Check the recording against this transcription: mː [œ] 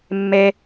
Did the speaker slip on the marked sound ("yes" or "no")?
yes